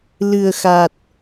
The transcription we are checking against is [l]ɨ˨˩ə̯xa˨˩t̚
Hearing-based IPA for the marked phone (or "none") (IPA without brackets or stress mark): l